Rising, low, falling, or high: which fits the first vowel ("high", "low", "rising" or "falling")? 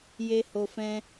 low